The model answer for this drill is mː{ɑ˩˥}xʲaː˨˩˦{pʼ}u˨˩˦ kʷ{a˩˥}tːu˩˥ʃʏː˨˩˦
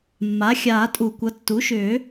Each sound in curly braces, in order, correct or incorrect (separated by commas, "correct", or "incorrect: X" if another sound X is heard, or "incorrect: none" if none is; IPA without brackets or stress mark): incorrect: a˩˥, incorrect: tʼ, incorrect: ʌ˩˥